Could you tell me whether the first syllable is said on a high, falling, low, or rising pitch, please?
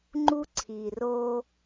high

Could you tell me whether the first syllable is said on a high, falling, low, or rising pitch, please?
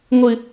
low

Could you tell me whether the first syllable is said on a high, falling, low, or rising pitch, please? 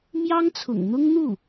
high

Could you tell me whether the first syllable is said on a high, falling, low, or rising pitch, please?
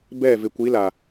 falling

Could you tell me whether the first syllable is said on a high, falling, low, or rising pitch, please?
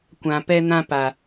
low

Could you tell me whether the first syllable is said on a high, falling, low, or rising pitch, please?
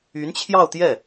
rising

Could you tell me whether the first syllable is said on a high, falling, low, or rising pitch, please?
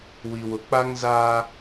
low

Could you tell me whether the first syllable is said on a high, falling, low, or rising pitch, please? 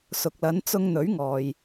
low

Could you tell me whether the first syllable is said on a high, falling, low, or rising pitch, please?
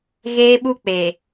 high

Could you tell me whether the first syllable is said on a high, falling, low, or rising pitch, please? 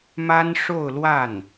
high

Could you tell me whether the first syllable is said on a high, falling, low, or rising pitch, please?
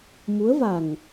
rising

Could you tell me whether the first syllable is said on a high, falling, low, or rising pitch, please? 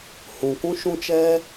low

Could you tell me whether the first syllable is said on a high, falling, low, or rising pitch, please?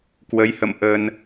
rising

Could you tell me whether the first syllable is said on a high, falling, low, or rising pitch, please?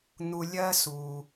low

